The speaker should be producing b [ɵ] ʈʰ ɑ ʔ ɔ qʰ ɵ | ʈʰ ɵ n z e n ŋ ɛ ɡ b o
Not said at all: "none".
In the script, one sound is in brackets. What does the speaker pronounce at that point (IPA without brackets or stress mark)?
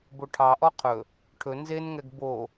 o